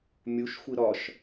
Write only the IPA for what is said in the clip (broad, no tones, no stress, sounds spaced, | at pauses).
mʲ u ʃ xʷ i ɾ ɒ ʃ